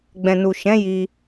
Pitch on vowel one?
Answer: low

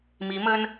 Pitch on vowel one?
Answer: rising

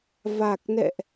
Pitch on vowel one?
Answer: low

